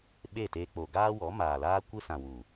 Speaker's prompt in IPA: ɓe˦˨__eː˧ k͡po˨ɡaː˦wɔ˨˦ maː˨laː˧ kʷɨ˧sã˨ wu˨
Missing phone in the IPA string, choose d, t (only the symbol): t